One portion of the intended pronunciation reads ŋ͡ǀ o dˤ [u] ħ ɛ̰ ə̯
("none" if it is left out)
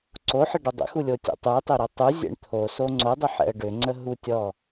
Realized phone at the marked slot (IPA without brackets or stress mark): ʏ